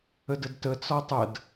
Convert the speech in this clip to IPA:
ə d ə d t ə t͡s ɒ tˤ ə d

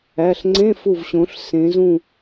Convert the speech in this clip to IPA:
æ˩˧˩ ɬ ŋ͡ǀ ẽ˧˥˧ f u˧˩ v ɕ õ˩˧ ɬ s ẽ˩˧ z ũ˧˩

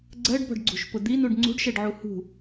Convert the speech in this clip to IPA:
ɡ͡ǀ ɜ ɖ b ɔ̤ ɖ ɡ͡ǀ ṳ ʃ p ʊ d̪ i n u ɖ ŋ͡ǀ ṳ ɖ ʃ ɛ ɖ ʕ u h ṳ

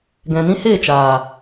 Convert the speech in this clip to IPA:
ɡ ɛ̃˨ n ĩ˦ h eː˦˨ t͡ʃ aː˨

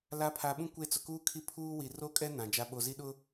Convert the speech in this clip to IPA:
l a˨˦ pʰ a˨ ɓ ũ˦ kʷ e˦˨ t͡s ʊ˨ k uː˦ kʰ i˦ pʰ uː˦ w i˨ r o˦ kʼ ɛ˦ n ã˨ d͡ʒ a˦ ɓ o˨ z i˦ ɗ ʊ˦

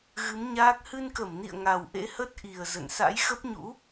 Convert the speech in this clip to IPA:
ɣ ɨ˨˦ m ɲ aː˦˥ k̚ h ɨ˧ n k ə˧˩ m n ḭ˧˨ ə̯ ŋ a˨˩ w ʔ ḛ˧˥ h ə˦˥ t̚ ʔ i˨˩ ə̯ z ə̰˧˨ n s a̰˧˥ j x ə˦˥ p̚ ɲ ṵ˧˥

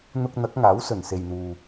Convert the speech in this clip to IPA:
n̪ ʊ˧ k̚ n̪ ɐ˨˥ k̚ ŋ aː˨˥ w s ɵ˨˩ n s e˨ j n̪ uː˨

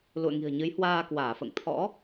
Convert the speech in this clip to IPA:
l ṵ˧˨ ə̯ ŋ i̤˨˩ ə̯ ɲ ɨ˨˦ j h w aː˧ k w aː˧˩ f ə̰ː˧˨ ŋ t̪ʰ ɔ̰˧˥

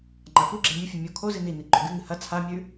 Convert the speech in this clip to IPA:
ŋ͡ǃ a f u ɡ͡ǁ e mʲ ɨ fʲ ɨ mʲ o kʰ o z i n i n i ǃ ɵ ɡ ɨ ŋ ɨ h ɐ t͡sʰ a mʲ ʉ

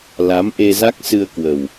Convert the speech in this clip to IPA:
l a˨˦ m ʔ e˧ z a˦˥ k̚ s ɨ˧ ə̯ k w ə˨˩ w

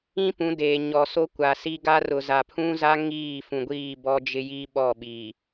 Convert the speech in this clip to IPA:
ĩ˦ p ũ˨˦ d eː˨ ɲ ɔ˨ s o˦ kʷ a˨ s i˦ ɡ a˦ r ʊ˨ z a˨ pʰ ũ˦ z a˦ ŋ iː˦˨ f ũ˨ ɡʷ iː˦˨ b ɔ˦ d͡ʒ ɪ˦ j i˦ ɓ ɔ˦˨ ɓ iː˨

